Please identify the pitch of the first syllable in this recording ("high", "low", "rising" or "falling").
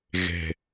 low